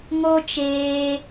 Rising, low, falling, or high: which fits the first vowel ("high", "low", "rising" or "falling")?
high